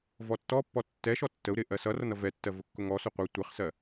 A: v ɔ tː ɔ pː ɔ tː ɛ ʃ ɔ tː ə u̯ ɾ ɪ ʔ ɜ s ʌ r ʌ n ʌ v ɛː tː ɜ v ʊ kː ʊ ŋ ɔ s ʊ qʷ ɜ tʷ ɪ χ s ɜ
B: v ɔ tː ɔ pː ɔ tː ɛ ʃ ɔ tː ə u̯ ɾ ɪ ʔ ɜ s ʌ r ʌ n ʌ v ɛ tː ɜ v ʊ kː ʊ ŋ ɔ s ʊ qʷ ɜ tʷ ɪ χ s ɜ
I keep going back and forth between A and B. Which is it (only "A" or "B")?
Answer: B